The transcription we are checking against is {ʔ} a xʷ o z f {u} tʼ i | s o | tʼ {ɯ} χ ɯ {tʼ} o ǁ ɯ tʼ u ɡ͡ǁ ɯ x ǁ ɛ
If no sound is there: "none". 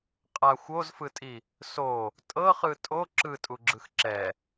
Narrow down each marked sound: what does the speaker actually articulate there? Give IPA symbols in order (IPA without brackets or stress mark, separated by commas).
qʼ, ɯ, ɤ, tʼ